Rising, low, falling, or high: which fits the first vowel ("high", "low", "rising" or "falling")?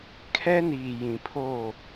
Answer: high